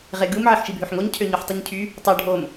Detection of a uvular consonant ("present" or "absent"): present